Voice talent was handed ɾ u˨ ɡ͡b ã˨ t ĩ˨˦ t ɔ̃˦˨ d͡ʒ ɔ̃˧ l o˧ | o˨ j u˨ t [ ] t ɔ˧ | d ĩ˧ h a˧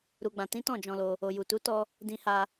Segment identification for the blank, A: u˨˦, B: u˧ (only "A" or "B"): A